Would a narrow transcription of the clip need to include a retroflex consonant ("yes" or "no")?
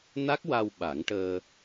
yes